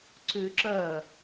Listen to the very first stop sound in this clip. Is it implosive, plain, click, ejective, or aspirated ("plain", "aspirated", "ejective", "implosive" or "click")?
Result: click